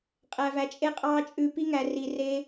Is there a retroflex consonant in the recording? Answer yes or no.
no